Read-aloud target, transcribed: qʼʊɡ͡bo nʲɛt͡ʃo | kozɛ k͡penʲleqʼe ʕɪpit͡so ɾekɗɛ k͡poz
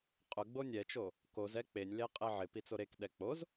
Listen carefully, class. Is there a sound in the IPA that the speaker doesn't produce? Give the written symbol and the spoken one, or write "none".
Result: none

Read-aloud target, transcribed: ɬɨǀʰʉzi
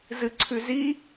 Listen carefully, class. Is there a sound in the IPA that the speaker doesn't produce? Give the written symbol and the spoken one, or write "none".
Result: ɬ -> z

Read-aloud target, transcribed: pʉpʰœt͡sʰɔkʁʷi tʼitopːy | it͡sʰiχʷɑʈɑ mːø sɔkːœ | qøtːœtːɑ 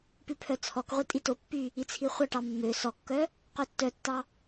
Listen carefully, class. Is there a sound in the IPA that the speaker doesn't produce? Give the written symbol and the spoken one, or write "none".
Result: none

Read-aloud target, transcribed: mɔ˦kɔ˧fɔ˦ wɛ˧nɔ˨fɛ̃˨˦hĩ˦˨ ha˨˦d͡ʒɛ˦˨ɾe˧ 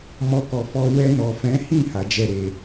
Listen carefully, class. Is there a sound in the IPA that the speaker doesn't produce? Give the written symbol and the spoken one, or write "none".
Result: none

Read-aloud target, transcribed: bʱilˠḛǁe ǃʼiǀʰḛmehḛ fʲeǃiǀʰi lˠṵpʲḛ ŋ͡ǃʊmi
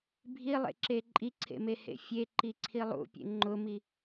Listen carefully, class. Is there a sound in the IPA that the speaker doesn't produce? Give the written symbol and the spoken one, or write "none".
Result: none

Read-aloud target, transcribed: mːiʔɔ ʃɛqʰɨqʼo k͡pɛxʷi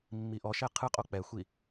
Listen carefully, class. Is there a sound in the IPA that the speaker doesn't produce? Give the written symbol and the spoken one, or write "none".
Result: none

